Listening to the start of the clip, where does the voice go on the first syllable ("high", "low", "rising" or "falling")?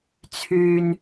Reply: low